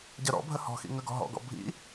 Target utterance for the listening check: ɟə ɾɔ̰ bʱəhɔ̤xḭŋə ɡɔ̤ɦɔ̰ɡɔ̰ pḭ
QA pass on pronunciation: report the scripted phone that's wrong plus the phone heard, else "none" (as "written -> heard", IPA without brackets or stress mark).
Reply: p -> bʱ